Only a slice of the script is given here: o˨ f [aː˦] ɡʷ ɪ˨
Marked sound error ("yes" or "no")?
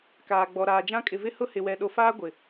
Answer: no